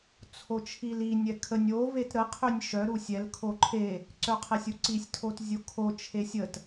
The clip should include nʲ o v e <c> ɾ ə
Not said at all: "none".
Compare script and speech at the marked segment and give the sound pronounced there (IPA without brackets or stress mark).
t